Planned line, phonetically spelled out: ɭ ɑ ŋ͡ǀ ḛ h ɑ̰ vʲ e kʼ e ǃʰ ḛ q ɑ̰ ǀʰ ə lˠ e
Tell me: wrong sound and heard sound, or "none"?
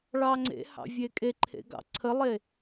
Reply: q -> ɡ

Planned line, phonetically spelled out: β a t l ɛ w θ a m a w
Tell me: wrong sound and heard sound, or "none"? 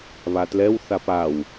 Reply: m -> p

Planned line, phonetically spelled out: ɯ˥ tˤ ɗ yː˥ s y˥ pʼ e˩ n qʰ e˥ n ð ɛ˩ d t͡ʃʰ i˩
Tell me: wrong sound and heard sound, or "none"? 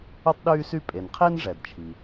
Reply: ð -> ʐ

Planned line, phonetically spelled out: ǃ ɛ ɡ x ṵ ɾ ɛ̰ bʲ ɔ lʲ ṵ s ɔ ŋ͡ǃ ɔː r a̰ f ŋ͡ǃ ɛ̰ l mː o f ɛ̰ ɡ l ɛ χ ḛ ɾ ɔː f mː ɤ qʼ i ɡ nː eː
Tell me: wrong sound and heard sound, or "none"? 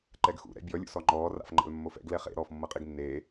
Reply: none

